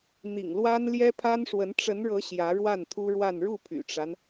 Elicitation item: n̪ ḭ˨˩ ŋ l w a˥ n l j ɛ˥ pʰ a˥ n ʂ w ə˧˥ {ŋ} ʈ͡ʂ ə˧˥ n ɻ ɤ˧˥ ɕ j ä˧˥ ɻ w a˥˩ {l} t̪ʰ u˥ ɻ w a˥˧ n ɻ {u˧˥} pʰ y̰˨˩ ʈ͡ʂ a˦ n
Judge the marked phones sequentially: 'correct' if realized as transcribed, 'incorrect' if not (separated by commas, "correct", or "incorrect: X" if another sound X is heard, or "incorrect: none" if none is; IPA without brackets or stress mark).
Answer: incorrect: n, incorrect: n, incorrect: u˥˩